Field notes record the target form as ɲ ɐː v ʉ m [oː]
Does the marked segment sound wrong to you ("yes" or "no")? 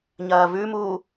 yes